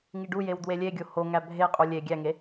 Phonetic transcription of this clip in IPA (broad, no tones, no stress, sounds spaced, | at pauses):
ŋ i ɖ u j e w d w e lʲ e ɡʲ o h o ŋ æ bʱ e qʼ u lʲ e ɡʲ æ ŋ e